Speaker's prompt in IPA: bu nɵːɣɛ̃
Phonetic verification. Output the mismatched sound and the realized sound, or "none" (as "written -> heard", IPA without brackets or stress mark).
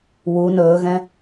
b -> w